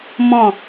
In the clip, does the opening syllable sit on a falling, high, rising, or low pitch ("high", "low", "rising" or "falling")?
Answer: falling